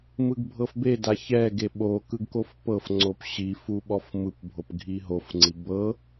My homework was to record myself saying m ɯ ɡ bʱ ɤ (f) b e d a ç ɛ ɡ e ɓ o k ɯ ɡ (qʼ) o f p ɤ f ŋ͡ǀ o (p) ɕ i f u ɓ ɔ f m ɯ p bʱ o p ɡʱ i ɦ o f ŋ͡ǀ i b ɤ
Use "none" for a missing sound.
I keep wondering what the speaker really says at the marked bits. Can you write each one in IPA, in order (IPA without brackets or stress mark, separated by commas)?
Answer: f, k, p